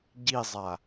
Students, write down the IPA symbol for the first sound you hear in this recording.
ɟ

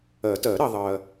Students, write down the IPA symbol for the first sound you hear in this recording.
ɜ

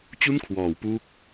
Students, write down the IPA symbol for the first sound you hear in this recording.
t͡ɕ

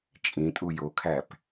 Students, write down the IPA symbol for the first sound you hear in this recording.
t͡ʃʼ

